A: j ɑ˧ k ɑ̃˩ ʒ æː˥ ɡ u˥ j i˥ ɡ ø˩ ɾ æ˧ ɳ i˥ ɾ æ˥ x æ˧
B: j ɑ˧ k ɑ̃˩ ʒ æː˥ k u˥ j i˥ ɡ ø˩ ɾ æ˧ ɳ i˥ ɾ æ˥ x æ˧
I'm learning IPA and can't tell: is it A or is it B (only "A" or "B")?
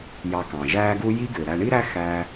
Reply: A